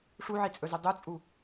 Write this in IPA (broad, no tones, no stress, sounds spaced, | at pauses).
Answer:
ʂ u ʕ i t͡sʼ ɵ z ɵ dˤ u t͡sʼ u